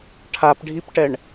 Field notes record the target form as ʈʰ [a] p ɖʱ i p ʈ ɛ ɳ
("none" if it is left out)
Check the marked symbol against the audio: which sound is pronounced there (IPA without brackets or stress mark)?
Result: a